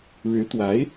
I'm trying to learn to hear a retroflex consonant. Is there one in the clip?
yes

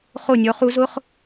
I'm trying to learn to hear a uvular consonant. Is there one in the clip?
yes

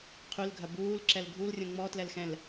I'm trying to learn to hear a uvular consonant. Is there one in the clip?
yes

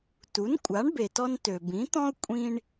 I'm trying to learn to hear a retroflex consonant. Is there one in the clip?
yes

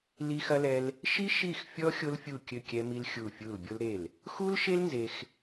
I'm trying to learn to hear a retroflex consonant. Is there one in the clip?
no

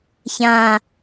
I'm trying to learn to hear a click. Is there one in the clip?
no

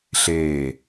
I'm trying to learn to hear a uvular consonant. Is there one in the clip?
no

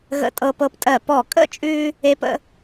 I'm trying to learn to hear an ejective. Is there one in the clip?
yes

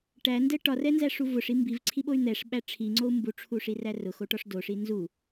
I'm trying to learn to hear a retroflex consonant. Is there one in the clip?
yes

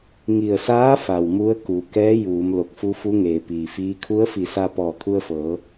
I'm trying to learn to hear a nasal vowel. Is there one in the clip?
no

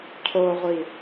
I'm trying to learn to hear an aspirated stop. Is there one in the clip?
yes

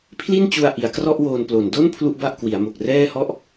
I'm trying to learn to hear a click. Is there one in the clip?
no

